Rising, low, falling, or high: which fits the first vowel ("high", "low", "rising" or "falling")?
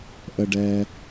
low